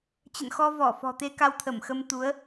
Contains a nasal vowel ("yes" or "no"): no